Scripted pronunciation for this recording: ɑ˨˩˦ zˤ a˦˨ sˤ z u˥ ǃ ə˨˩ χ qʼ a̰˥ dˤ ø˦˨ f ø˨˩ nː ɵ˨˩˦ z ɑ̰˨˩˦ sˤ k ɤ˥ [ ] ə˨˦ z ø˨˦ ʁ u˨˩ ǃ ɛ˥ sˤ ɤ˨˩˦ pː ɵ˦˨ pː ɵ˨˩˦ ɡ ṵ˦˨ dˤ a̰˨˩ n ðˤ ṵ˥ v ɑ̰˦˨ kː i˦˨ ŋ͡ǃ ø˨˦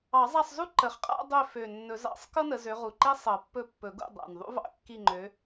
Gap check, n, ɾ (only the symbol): n